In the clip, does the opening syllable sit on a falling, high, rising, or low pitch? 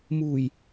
low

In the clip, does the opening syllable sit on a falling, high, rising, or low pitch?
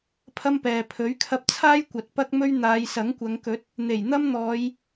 high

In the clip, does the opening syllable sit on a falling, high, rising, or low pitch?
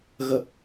low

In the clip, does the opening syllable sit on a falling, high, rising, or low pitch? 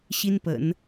high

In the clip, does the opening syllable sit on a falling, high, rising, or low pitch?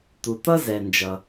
low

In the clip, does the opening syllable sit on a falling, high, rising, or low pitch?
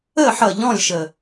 falling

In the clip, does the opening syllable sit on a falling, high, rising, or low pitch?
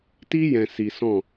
high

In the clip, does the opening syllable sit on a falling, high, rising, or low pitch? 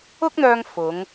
high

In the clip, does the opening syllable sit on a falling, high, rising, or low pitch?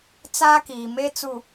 high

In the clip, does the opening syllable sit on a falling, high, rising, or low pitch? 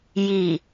low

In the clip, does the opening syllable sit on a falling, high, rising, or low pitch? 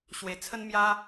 low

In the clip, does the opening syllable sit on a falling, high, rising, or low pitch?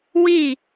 falling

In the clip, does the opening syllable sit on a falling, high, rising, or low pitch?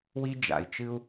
high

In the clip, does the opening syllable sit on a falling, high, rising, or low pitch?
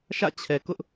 falling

